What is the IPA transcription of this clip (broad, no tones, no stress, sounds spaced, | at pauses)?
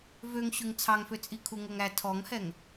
v ø ŋ ɕ ʉ ŋ t͡sʰ ɑ ŋ f ø t͡sʼ i kʰ u ŋ o ŋ æ tʰ ɔ ŋ h ɛ ŋ